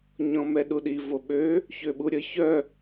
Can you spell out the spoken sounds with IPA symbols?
ɲ ɔ̃ m ɛ ɗ u ɗ i v o ɓ ø | ç ø ɓ u ɾʲ ə ç œ

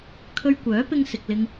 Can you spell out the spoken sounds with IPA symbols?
kʰ ɵ˧ ɥ kʷ œː˨˥ p ɪ˧ ŋ s ɪ˨ k̚ l ɪ˧ ŋ

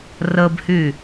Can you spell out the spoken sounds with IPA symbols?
r ə b h y

